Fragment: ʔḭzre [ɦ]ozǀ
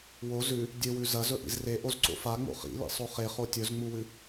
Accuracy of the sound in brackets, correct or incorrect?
incorrect